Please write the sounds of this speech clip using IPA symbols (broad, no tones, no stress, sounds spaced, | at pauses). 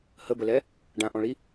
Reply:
h ə b ə l ɛ | ɖ ã ʔ ɔ̃ ɭ i